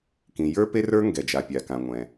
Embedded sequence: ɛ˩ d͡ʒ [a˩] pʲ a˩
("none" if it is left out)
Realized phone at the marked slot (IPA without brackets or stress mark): a˩